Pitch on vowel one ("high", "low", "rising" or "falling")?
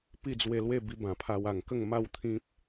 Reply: falling